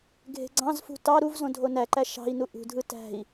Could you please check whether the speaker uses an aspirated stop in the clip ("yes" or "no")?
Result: no